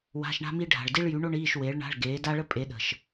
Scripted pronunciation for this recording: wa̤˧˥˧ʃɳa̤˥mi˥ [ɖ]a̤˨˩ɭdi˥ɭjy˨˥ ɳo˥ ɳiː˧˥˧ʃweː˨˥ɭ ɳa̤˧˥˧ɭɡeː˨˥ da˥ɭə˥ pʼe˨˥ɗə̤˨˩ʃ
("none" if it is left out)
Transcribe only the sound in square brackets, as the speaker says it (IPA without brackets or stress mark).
ɖʱ